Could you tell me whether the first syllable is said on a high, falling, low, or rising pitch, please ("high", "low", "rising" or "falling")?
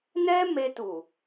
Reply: high